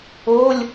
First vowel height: mid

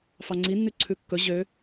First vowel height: low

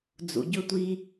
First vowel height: high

